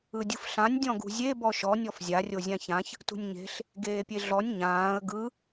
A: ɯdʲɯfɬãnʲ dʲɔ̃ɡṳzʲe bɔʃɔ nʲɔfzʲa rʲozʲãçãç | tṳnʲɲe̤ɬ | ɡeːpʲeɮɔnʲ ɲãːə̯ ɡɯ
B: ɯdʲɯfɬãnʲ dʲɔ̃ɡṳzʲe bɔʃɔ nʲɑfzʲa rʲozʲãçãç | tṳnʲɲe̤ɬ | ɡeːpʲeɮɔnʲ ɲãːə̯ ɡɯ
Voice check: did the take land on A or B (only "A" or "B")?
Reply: A